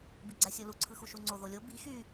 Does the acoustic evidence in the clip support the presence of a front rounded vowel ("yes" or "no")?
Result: yes